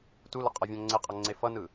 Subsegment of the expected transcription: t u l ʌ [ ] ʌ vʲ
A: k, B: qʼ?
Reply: B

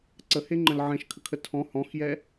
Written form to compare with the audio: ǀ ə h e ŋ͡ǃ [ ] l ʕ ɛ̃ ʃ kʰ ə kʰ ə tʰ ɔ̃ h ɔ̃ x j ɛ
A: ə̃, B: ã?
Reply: A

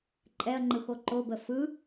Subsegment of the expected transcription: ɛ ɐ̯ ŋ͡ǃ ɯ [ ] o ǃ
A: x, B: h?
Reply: A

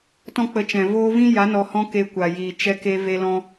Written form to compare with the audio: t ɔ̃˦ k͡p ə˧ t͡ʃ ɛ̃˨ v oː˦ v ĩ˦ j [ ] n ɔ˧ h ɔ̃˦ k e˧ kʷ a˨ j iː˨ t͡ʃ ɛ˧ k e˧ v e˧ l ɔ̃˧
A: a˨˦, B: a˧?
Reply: A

